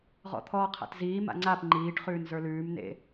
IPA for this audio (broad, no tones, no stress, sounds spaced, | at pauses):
ʁ ɔ̰ t̪ʰ ɔː qʰ a̰ t z iː m a̰ ŋ͡ǀ a p ŋ͡ǃ iː ʈ χ ʉː n z ə˞ l ʉː m n ḛ